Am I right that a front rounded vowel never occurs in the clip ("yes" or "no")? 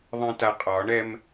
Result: yes